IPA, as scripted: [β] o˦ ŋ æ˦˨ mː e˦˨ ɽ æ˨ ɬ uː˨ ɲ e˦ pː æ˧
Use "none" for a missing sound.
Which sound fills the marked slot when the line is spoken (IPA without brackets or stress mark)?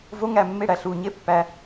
v